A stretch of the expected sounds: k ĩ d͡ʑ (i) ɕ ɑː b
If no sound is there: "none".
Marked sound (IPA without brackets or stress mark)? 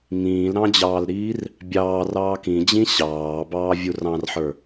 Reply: ĩ